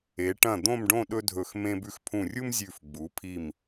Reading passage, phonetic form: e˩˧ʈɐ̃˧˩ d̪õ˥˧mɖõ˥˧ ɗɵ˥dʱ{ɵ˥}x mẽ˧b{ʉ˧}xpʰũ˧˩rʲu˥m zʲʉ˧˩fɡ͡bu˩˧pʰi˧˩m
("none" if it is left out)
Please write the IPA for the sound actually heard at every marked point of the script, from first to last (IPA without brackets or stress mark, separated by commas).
ɵ˧˩, ʉ˧